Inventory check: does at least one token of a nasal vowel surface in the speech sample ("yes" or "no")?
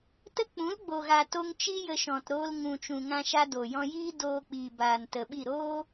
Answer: yes